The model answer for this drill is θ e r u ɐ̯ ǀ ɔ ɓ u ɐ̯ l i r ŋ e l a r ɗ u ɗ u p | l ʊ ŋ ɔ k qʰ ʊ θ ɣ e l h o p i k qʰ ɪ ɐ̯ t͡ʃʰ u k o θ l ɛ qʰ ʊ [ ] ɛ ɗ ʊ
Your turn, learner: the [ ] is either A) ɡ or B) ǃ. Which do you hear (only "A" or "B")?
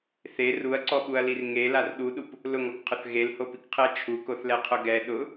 A